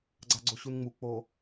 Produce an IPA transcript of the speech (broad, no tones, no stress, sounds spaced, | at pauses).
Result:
ɡ͡ǀ a ɡ͡ǀ o ɕ u n ŋ͡m u k͡p o